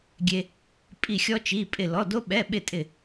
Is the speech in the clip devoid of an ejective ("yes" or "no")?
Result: no